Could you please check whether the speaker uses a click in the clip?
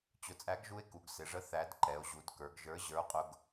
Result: yes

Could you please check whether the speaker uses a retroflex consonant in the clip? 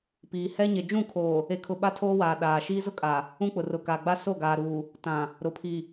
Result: no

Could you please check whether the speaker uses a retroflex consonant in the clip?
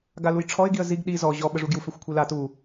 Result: yes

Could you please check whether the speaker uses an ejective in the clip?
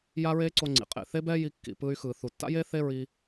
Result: yes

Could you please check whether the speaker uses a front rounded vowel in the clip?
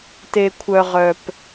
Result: yes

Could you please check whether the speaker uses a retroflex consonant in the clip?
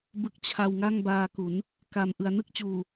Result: no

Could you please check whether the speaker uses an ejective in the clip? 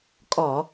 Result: yes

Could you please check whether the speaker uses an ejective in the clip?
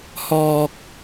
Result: no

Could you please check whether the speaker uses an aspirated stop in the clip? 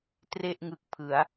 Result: yes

